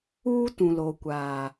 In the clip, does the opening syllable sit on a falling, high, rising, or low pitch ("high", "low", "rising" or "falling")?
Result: high